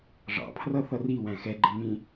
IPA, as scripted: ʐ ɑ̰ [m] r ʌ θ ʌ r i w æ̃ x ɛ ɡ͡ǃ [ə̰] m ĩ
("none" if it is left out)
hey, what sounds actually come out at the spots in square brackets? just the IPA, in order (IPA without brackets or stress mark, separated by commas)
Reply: pʰ, ə